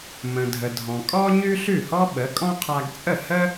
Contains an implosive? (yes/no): yes